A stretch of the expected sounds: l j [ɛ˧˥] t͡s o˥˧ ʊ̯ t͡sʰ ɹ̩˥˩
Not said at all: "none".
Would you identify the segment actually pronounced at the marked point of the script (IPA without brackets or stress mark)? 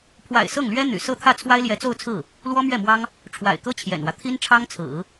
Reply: ɛ˧˥